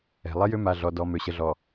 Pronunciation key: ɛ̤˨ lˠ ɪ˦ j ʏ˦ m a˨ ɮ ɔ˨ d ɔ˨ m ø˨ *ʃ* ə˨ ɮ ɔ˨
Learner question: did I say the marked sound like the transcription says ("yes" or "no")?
no